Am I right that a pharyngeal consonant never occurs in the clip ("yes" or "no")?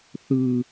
yes